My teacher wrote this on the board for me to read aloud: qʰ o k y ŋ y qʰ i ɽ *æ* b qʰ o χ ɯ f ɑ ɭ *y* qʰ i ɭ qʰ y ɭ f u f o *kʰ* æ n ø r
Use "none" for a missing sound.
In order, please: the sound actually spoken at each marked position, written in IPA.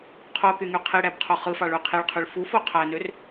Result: æ, y, qʰ

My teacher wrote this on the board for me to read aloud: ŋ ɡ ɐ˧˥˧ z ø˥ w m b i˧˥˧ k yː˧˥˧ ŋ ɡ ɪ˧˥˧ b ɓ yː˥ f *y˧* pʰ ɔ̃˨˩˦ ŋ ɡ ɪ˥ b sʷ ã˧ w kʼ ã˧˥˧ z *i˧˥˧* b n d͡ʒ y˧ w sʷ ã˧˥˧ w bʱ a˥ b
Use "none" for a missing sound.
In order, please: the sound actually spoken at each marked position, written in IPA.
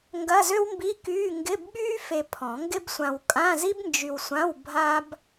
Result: e˧, i˥

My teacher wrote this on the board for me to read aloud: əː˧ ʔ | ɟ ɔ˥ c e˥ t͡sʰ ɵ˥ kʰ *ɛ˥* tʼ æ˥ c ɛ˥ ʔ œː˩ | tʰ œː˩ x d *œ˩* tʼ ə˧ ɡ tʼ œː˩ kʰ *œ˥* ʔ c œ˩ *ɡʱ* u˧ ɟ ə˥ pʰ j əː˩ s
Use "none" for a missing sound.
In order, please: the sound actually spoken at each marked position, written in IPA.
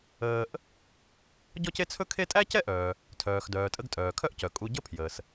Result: e˥, œː˩, œ˥, kʼ

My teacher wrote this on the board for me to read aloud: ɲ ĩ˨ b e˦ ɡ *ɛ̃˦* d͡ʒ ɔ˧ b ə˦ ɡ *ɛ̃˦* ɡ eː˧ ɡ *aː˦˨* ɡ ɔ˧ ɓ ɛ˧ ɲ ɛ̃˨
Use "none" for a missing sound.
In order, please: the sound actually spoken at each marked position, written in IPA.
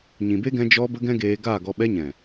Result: ɛ̃˧, ɛ̃˦, aː˦˨

